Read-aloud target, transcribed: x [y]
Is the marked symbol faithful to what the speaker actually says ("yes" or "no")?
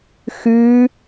yes